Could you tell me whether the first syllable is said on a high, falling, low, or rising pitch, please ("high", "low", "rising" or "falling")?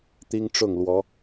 high